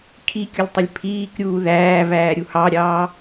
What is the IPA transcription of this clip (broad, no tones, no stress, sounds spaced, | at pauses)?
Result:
kʰ i kʲ ʊ lʲ tˤ ɪ lʲ pʰ iː k ɾʲ uː ð æː v æː ɾʲ u h ɑ ɾʲ ɑː